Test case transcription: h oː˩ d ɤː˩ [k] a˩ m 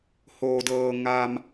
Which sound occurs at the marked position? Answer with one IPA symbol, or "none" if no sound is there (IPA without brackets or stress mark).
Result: ŋ